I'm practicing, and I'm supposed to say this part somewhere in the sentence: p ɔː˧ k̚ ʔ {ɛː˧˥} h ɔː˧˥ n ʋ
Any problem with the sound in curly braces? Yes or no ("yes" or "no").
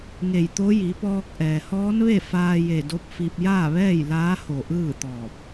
yes